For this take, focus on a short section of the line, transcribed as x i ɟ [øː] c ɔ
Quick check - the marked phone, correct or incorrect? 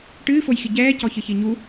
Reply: incorrect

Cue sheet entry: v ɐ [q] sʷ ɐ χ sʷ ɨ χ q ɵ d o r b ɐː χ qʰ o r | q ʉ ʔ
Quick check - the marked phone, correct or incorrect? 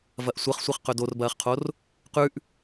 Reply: incorrect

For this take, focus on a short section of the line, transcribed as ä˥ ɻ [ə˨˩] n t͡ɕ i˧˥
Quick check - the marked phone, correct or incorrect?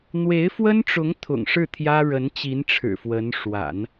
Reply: incorrect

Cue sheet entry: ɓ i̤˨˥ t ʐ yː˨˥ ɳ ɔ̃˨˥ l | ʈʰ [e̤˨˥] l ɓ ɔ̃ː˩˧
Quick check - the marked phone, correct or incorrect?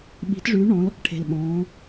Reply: incorrect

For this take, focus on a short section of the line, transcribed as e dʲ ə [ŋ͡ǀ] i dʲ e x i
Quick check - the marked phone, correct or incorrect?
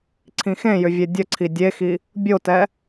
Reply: incorrect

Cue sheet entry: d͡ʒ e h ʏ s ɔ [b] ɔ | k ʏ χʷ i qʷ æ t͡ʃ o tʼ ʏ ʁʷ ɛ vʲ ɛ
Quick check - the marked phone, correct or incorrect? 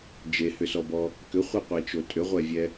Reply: correct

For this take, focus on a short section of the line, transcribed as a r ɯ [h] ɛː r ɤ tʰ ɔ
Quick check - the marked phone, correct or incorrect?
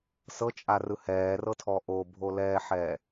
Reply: correct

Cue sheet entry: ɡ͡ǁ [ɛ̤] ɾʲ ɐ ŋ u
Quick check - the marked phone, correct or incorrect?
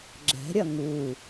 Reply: correct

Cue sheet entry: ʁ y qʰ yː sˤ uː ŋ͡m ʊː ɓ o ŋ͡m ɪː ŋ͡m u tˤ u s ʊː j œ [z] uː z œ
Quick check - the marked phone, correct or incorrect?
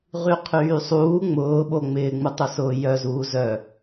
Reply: correct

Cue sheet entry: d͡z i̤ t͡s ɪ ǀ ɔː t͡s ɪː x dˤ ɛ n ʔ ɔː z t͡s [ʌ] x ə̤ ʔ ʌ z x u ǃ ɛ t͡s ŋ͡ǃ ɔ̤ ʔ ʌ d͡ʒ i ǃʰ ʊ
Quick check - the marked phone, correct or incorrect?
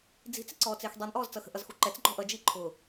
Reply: correct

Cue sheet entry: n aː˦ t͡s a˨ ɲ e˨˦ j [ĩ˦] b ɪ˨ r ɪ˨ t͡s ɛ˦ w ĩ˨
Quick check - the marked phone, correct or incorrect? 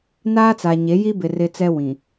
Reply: incorrect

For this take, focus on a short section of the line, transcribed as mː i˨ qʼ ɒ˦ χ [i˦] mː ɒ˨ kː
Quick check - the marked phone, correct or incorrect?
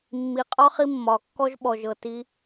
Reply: correct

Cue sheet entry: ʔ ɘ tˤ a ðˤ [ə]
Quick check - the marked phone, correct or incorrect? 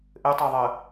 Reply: correct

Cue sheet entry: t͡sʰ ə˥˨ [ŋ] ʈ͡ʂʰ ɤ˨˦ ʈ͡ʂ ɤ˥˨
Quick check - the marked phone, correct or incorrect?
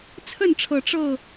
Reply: incorrect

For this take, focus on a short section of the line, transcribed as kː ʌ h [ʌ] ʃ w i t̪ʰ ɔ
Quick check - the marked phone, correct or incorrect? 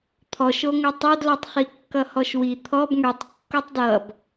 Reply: incorrect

